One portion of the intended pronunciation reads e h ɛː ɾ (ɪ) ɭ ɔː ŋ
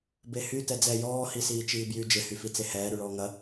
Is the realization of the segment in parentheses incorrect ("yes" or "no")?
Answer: yes